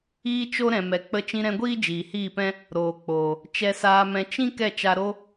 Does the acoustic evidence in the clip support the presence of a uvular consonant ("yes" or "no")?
no